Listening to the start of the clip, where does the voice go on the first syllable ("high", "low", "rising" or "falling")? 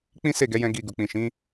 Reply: high